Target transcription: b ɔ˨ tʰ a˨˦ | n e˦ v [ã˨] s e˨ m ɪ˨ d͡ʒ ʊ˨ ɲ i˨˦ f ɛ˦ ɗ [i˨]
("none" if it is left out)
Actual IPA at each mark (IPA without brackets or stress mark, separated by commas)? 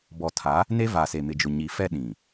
a˨, ĩ˨